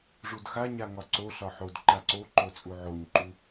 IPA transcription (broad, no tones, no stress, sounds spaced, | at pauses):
ʐ u d x a ɲ a ŋ ɒ ǀ o ɬ ɒ ħ o d ǃ a ǀ o ǃ o t͡sʼ u ʕ o ɲ ǃ u